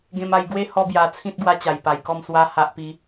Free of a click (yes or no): yes